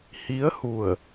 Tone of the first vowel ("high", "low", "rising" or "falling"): rising